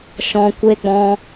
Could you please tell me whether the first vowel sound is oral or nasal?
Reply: nasal